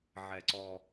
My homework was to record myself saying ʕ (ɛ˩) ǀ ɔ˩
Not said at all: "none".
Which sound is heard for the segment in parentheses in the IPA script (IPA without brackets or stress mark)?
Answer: ɛ˩